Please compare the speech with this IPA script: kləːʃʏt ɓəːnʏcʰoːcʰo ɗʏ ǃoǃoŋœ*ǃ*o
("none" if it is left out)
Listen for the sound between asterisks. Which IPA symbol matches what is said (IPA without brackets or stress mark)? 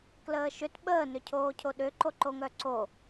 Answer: ǀ